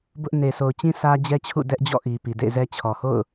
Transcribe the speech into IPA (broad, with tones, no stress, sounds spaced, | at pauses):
b ʊ˦ ʔ n e˨ s o˨ ʊ̯ t͡ɕ ĩ˦ sʰ ä˦ d͡ʑ ɛ˦ t͡ɕʰ ṵ˦˨ d ɛ˦ ʔ d͡ʑ ɔ̰˦˨ ʔ i˨ p i˨ d ḛ˦˨ ɪ̯ z ɛ˦ t͡ɕʰ ɔ˨ h o̰˦˨ ʊ̯